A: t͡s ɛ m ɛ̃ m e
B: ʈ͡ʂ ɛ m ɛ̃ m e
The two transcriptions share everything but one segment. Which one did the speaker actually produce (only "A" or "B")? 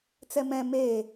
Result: A